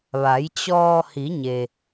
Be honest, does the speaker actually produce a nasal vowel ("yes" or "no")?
no